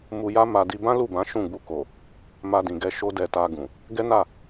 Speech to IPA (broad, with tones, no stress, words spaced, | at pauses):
mu˧ja˦ ma˧ di˧bã˦ lu˦˨bã˨˦ ʃũ˦˨ɡ͡bu˧ko˨ | ma˧dĩ˨ɡɛ˧ ʃo˦dɛ˧ ta˧ ɡũ˨ | ɡɛ˦na˦˨